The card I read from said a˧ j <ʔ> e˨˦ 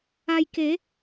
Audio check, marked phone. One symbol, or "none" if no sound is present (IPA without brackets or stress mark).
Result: k